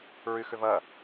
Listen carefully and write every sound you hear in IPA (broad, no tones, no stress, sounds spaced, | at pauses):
ɹ y x ʏ v ɐ